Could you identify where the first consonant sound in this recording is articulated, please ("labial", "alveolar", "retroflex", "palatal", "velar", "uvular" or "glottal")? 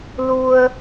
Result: alveolar